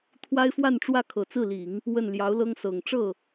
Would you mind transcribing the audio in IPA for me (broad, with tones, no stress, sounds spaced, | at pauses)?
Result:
t̪ʰ w a˥ ɪ̯ f w a˥˧ n ʈ͡ʂ w ä˥˩ kʰ ɤ˨˩ t͡s ɹ̩˥˩ l i˨˩˦ ŋ | w ə˥˩ n l j ɑ˧˥ ʊ̯ l ɤ˥ ŋ s ɤ˨˩ ŋ ʈ͡ʂ ɤ˥˩